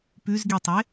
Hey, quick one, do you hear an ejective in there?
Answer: no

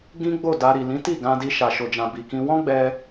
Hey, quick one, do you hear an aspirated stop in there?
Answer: no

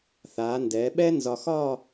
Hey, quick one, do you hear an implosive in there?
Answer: yes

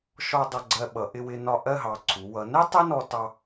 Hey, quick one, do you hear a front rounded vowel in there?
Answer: no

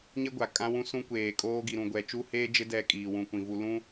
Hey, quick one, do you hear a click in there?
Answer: no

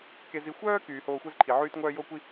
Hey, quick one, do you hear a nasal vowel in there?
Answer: no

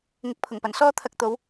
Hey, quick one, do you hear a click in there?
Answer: no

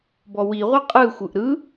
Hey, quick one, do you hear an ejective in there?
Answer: yes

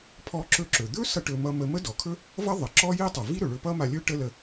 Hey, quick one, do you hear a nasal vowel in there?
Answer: no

